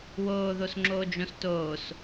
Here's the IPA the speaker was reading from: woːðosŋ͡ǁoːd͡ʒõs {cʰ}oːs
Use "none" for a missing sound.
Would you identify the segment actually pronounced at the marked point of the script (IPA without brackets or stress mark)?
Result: t